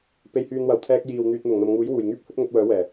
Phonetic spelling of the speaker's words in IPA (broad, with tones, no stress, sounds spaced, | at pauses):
p e˨ j h yː˨ n w ɐ˨˩ w t̪ʰ ɛː˧ k̚ j iː˨ w n̪ yː˧ t̚ n̪ ʊ˨˩ ŋ n̪ ɐ˨ m ŋ uː˨˥ j w uː˨˩ j ŋ yː˥ p̚ h ɵ˥ t̚ ŋ ɵ˨˥ t̚ w œː˨˥ w ɛː˨˩